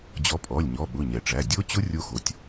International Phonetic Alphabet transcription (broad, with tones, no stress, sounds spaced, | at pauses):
d͡ʑ ɔ˨˦ pʼ ɔ˩˧˩ lʲ ɲ ɔ˩˧˩ ɓ ʊ˩˧˩ ɲ ɛ˩ ʈ͡ʂ æ˩˧˩ dʲ o˦˥ t͡ɕ ʊ˦˥ rʲ o˦˥ x o˩˧˩ tʲ